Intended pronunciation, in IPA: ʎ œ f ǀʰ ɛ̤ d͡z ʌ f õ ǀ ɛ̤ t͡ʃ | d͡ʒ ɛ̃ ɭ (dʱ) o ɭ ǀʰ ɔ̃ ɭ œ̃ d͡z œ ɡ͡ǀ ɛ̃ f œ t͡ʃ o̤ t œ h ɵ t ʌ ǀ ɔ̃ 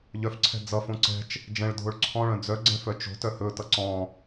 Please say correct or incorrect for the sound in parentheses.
correct